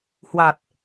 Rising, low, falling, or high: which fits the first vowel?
low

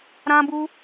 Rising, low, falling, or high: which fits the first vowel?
high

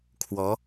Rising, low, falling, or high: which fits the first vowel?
rising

